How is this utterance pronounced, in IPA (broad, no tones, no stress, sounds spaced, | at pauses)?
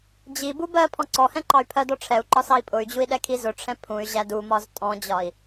d͡ʑ i b u b ɜ pʰ ɔ̃ ǀ ɔ h ɛ̃ ǃ ɑ y̯ pʰ ɜ d ɔ ʈ͡ʂʰ ɛ u̯ ǃ ɒ s ɑ i̯ pʼ ʊ y̯ d͡ʑ u i̯ ɗ ɛ kʰ i z ʊ ʈ͡ʂʰ ɛ̃ pʰ ũ y̯ ʑ æ d u m ɒ z tʼ ɔ̃ d͡ʑ ɒ i̯